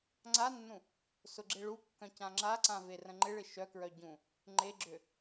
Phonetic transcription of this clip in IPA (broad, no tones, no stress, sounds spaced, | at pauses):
ŋ͡ǀ a nː ũ | s ʊ ɡ͡ǁ e ɭ u kː œ̃ c ã ŋ͡ǁ a ǀ ã v e r ə̃ ŋ͡ǃ ɪ ɭ ɪ ʃ œ k ɹ œ ɟ ũ | ŋ͡ǃ e ɡ͡ǁ ø